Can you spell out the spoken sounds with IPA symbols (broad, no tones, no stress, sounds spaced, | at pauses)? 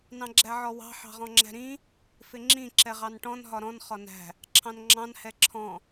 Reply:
n ɑ̃ ɡ͡ǁ æ ʕ ɔ w ɑ̤ ħ ɑ̤ ʁ ɔ̃ ŋ͡ǁ æ̤ ɾ ĩ | f ɪ ŋ͡ǁ ĩ ǁ ɛ ʁ ɑ n ʈ ɔ̃ n ɦ ɒ ɾ ɔ̃ n χ ɒ n æ̤ | ǁʰ ɑ̃ n ŋ͡ǁ ɑ̃ n h ɛ ǁʰ ɔ̃